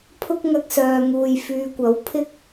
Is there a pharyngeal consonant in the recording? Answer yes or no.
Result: no